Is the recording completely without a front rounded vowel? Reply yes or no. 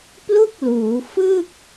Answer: yes